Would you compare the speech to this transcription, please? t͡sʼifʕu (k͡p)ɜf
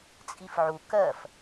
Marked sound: incorrect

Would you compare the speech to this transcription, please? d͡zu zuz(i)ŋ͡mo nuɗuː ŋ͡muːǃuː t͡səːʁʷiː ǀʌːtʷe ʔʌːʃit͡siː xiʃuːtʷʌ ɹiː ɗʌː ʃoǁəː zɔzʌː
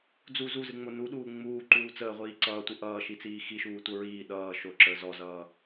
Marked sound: incorrect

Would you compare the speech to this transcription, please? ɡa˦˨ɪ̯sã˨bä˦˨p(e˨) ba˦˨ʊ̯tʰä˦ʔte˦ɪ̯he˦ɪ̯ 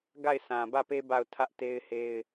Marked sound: incorrect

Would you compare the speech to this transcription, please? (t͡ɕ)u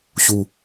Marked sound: incorrect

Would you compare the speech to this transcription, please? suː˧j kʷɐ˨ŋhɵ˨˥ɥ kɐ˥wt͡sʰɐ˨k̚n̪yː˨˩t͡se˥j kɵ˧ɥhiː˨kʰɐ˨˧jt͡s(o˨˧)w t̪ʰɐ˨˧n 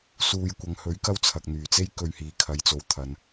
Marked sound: correct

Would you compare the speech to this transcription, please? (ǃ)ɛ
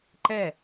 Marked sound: correct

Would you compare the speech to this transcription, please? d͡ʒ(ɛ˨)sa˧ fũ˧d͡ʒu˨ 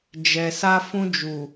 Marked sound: correct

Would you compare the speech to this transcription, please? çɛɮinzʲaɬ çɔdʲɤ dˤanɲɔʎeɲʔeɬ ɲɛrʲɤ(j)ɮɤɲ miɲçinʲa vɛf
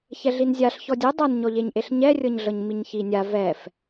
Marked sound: incorrect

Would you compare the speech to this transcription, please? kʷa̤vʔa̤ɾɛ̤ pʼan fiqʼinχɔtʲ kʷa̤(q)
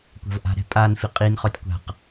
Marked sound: correct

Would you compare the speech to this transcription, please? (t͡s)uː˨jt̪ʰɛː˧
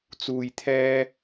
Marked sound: correct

